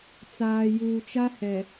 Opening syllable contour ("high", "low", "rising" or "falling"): low